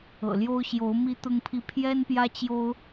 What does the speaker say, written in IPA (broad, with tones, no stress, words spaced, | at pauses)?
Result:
ɤ̰˨˩ljo˦ʊ̯ ɕjo˨˦ʊ̯ mi˦t̪ʊ˦ŋpʰi˦ pʰjɛ˦npjä˦t͡ɕjo˦ʊ̯